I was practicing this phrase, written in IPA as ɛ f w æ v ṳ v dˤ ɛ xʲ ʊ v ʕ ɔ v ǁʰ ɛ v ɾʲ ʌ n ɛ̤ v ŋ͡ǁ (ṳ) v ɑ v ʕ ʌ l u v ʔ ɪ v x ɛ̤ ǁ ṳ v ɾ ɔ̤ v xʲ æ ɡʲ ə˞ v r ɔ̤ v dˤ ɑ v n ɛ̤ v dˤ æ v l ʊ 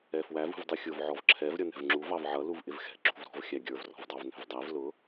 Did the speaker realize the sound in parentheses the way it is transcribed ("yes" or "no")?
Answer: no